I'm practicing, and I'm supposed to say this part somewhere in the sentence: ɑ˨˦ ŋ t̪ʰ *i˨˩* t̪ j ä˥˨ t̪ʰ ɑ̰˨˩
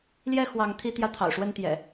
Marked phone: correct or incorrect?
incorrect